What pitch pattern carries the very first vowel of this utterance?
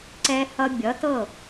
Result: low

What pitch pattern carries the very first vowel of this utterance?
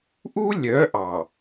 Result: high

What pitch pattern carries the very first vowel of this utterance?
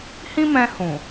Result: high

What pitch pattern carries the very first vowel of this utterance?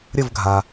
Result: falling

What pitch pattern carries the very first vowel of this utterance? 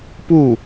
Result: falling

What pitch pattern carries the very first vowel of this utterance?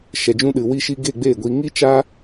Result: low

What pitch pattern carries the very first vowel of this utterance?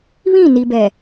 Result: falling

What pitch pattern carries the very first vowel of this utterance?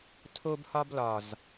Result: high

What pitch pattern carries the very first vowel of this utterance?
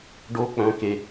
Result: rising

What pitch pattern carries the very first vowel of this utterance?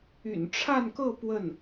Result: low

